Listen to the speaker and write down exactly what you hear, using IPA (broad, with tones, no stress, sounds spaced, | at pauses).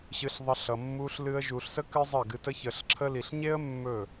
ɕ ɨ˧ ɬ ðˤ ʌ˧ ɬ ʌ˨ mː u˧ ɬ l ɨ˦ ə̯ ʒ u˨ ɬ s ə˦ k ɨ˦ zˤ ə˦˨ ɡ ɨ˧ t ə˦ ç ə˨ ɬ ǁʰ ə˧ l i˨ ɬ ɲ e˦ ə̯ mː ɵ˦˨